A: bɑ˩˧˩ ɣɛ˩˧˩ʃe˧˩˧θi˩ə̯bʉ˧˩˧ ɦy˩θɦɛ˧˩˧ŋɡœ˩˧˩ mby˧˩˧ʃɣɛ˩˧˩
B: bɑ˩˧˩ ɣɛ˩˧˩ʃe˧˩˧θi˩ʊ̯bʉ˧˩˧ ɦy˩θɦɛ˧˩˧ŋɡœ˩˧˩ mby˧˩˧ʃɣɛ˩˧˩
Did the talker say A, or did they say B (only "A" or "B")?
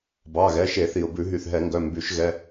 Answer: B